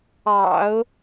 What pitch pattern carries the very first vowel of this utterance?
low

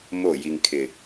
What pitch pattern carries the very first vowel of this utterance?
falling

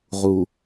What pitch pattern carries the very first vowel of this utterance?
low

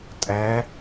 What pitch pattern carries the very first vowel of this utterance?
rising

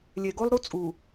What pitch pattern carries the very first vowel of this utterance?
low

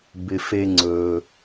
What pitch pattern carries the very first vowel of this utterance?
low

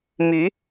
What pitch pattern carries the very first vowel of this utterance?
rising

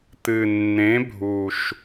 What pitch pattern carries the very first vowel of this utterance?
low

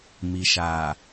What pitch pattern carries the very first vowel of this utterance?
low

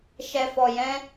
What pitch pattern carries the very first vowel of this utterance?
low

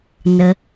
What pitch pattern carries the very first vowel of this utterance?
low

